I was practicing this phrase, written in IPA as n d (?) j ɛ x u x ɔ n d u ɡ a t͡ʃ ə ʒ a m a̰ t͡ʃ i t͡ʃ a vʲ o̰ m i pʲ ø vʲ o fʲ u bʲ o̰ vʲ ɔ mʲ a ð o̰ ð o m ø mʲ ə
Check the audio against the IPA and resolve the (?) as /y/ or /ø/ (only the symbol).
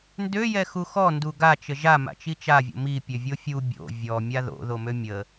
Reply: ø